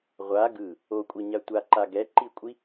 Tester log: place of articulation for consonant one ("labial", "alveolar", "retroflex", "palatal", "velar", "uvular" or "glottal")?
uvular